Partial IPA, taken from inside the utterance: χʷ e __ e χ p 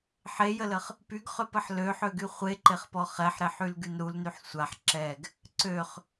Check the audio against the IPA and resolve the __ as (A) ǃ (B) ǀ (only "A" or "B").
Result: A